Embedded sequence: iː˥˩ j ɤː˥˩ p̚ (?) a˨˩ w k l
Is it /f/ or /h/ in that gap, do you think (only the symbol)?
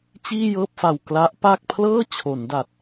f